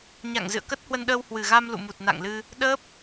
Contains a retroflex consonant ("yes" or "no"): no